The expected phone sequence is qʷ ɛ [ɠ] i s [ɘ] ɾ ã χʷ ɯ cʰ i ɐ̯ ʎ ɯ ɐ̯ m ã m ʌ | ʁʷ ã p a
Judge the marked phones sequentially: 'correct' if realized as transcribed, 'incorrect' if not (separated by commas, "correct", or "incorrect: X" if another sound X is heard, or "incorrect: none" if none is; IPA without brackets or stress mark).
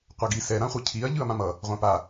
incorrect: ɡ, incorrect: ɛ